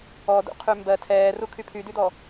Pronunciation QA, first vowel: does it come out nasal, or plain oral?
oral